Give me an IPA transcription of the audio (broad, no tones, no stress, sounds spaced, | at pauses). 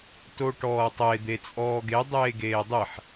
t o ʈ ɔː ɐ̯ tˤ e d̪ e t͡sʼ ɔː ɡ e dˤ eː ɡ eː dˤ e ħ